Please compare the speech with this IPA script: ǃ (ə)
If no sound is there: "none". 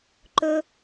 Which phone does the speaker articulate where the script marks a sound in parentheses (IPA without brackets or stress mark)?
ɵ